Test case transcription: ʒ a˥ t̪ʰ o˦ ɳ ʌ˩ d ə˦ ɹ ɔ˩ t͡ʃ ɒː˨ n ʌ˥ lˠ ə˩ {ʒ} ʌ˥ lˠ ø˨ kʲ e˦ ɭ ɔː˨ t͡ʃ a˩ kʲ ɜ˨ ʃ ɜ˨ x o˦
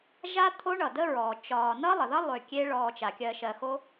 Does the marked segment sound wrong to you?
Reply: yes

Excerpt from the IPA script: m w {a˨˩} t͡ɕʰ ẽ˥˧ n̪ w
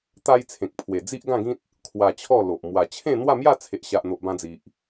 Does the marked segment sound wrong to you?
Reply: no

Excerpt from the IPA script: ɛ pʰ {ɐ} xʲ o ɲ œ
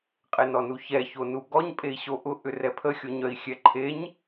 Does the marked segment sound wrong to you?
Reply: yes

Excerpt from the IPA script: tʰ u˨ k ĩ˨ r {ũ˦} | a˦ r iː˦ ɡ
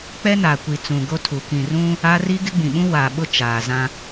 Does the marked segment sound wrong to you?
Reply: no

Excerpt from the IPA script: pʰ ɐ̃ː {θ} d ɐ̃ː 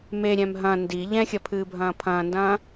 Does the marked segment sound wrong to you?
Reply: yes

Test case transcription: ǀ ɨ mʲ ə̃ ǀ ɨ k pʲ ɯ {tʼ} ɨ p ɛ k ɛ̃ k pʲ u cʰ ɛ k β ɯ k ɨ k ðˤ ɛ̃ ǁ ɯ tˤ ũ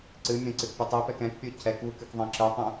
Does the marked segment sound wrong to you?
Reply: yes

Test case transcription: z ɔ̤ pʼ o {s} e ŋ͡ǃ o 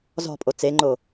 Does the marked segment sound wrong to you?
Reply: yes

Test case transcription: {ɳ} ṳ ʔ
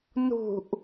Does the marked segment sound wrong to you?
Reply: yes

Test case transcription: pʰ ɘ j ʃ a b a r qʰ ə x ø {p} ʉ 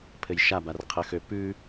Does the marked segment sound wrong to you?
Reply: no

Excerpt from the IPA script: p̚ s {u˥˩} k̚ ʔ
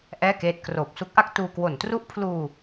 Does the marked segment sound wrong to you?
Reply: yes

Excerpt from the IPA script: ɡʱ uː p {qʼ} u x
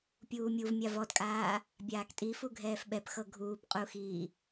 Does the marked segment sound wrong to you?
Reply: no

